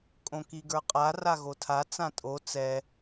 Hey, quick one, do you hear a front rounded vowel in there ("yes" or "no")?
no